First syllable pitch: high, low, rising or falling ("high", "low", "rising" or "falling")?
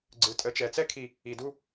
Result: low